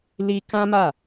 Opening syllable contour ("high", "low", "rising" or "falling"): high